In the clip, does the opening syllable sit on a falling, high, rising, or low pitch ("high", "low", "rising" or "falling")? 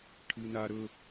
high